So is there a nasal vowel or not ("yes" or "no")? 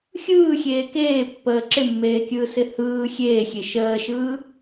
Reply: no